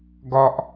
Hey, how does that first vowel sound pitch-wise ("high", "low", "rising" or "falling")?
high